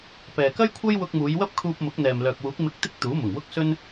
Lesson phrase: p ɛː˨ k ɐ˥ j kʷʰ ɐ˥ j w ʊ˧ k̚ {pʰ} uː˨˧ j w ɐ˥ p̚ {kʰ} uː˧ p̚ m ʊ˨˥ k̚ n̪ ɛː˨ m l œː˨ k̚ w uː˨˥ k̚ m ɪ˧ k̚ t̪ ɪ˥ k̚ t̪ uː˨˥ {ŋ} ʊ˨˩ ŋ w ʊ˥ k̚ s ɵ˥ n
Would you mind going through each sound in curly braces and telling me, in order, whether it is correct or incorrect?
incorrect: m, correct, incorrect: m

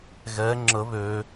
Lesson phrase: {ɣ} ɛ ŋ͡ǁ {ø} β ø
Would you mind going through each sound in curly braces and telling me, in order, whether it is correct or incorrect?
correct, incorrect: ə

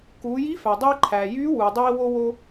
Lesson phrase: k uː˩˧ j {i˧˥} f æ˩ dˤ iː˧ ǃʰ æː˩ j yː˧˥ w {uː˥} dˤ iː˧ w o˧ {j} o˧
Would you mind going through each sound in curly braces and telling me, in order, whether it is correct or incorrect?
correct, incorrect: uː˩, incorrect: w

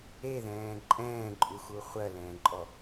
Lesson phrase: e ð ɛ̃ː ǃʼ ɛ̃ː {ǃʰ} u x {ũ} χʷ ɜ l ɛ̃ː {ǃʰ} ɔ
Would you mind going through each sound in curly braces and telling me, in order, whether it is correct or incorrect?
incorrect: ǃʼ, incorrect: u, incorrect: ǃʼ

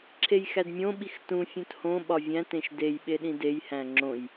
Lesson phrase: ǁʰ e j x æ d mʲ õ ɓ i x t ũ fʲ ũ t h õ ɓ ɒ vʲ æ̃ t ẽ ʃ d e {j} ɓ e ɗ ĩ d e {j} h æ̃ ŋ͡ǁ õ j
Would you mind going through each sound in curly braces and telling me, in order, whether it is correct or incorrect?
correct, correct

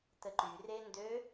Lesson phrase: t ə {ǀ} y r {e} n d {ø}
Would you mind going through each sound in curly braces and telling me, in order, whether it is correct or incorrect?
incorrect: ǃ, correct, correct

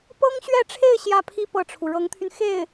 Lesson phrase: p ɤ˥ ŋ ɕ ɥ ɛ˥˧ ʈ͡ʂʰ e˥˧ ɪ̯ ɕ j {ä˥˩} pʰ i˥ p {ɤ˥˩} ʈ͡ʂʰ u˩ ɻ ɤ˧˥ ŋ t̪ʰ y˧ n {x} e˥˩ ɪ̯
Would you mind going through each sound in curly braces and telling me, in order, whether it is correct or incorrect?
correct, correct, correct

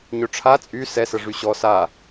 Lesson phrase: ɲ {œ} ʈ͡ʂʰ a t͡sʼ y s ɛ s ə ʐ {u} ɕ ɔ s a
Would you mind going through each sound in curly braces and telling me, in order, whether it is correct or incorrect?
incorrect: ɵ, incorrect: y

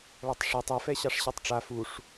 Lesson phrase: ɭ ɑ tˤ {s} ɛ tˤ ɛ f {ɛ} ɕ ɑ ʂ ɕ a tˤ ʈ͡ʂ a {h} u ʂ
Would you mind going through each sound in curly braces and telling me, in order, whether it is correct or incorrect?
incorrect: ʂ, correct, incorrect: f

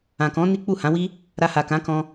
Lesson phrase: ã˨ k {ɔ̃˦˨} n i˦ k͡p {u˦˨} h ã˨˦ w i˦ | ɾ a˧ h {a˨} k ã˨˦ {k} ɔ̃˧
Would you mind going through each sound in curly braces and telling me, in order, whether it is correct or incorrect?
incorrect: ɔ̃˨˦, correct, correct, correct

